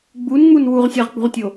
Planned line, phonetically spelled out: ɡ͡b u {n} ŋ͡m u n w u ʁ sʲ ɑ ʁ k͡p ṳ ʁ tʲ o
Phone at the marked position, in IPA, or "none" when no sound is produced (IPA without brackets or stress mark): n